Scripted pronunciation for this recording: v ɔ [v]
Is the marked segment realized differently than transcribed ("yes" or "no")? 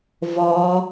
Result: yes